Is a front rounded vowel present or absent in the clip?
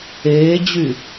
present